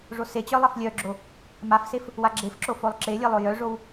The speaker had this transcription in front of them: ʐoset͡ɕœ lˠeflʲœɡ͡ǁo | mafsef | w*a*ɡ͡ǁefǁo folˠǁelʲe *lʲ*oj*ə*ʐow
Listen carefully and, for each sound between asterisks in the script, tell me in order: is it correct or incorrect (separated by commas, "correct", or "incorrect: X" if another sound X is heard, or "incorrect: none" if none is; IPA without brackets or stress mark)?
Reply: correct, incorrect: lˠ, incorrect: œ